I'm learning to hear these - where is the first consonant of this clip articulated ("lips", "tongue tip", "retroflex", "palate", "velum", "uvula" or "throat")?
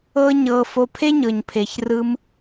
palate